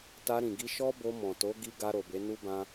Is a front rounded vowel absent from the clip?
yes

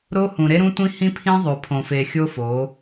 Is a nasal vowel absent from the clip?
no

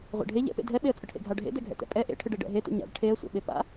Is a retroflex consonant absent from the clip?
no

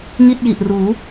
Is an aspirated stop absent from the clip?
yes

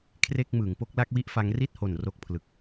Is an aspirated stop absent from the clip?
no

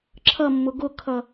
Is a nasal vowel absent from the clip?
yes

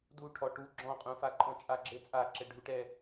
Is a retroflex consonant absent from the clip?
no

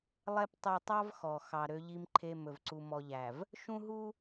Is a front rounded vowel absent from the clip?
no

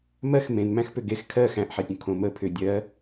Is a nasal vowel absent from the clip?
no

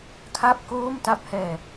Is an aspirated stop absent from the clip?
no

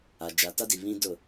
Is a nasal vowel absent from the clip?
no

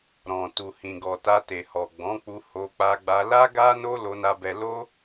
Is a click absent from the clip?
yes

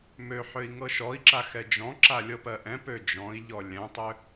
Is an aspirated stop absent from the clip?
yes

